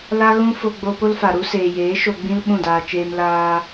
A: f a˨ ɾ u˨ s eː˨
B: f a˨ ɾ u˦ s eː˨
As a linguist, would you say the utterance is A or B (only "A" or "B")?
B